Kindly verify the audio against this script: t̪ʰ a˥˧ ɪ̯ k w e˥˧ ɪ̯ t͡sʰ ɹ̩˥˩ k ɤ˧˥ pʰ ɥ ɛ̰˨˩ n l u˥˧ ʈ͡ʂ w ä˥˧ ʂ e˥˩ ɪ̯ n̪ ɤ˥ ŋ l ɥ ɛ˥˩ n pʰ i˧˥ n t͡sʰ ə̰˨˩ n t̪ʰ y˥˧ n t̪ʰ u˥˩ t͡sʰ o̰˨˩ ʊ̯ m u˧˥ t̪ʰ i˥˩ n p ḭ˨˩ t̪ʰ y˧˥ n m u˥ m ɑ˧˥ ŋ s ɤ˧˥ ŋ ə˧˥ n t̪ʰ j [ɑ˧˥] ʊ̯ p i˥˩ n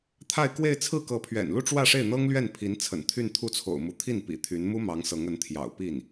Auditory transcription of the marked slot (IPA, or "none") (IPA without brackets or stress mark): ɑ̰˨˩